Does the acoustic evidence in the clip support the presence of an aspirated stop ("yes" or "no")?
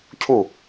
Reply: yes